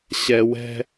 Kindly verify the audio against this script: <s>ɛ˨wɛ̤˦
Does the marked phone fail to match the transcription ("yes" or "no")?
yes